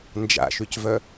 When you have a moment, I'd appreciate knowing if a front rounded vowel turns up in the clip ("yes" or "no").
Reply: yes